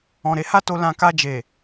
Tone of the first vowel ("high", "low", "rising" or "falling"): low